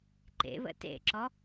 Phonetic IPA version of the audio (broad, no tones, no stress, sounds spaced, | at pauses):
ǃ ḛ β ə̰ t ḛ ǁ ɔ